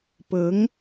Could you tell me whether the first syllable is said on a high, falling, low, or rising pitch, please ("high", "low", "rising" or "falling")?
rising